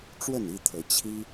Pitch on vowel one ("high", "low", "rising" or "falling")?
falling